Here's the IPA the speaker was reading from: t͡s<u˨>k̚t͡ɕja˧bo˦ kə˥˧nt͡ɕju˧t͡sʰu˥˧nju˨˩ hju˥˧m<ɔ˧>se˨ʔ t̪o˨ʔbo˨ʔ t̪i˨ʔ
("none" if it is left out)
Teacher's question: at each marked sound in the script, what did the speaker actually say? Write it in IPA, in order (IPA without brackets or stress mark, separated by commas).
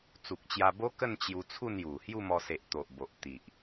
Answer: u˨, ɔ˧